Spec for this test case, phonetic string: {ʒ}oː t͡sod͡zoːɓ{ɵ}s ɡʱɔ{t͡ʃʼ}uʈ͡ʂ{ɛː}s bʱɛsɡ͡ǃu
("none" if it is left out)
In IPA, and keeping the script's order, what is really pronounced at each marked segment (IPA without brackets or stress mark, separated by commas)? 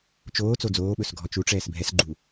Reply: t͡ʃ, ɵ, t͡ʃ, ɛː